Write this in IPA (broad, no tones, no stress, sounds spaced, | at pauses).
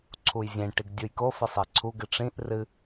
ǀʰ u j zʲ ẽ ʈ i ɡ dʲ u j k o f ɘ sˤ i ǀʰ u ɡ ɨ ʈ͡ʂ ĩ ʔ r ɨ